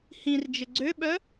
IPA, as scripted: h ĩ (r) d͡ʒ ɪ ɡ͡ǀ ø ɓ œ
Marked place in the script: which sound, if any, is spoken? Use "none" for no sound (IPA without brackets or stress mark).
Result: r